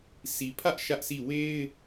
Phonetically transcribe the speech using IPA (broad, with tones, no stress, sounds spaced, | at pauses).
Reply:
sʰ i˨ pʰ ä˦ ʔ ʃ ä˦ ʔ sʰ i˦˨ w e˦ ɪ̯